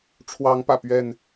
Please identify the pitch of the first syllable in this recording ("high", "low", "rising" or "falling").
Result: rising